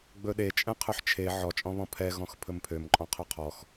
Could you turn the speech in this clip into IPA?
ɡ͡bɵɗe t͡ʃʼɛ̃qʰɵħt͡ʃʰe ʕɔt͡ʃʼɔ̃βɔ̃ pʰɛɣɔ̃x pʰɵmpʰømǃʼɔ̃ qʰɵqʰɔx

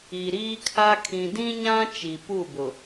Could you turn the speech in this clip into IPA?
i˨ɾiː˦kʰa˦ kʰĩ˨dĩ˦ɲã˦ t͡ʃi˨pu˦˨bʊ˨

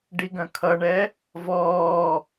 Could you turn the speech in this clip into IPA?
ɖiɡœ̃kʰʌɳɛ | vɔː

